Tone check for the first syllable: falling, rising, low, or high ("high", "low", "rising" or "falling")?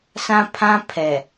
high